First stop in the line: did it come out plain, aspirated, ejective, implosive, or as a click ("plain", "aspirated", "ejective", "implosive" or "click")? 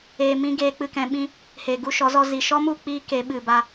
plain